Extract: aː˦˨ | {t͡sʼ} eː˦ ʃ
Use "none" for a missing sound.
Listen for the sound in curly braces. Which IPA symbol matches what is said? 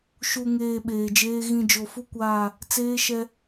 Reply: t͡s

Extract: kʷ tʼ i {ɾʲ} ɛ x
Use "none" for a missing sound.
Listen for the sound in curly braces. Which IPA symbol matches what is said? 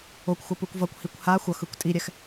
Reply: ɾʲ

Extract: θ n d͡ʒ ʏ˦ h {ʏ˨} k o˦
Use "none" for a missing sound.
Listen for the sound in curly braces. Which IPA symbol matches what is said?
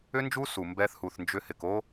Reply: ɪ˨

